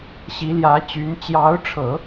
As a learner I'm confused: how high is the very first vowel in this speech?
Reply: high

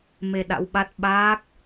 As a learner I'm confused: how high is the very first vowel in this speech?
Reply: mid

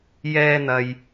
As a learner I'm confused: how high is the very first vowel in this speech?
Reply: mid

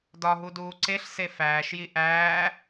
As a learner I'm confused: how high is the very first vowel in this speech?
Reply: low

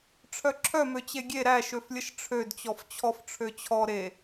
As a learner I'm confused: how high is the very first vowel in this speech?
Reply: mid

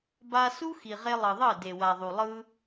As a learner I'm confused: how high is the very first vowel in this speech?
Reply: low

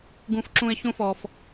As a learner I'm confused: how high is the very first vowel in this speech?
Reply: high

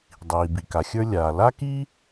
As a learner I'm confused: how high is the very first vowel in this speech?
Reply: high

